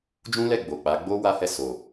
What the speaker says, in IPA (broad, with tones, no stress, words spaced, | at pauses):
d͡ʒũ˦lɛ˦˨ ɡ͡bo˨k͡pa˨˦ ɡ͡bo˦ wa˦hɛ˦˨ so˨